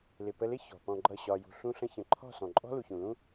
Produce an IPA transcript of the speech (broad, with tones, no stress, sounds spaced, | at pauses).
l ɪ˨ p ə˧ l ɪ˦ ç ɔ̤˨ p ɔ̃˧ ɡ͡ǃ ʌ˦˨ ɕ ɒ˧ j ṳ˧ ɬ ũ˧ ɬ ə̃˧ ç ə̃˨ ǃʰ ɔ̤˦˨ s ɔ̃˨ ǃʼ ɔ̤˦ l u˨ ç ũ˨ l ũ˦